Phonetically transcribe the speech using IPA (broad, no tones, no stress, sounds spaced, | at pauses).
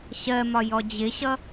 ɕ ɜ m ɒ j ɔ d͡ʑ ɪ ɕ ʌ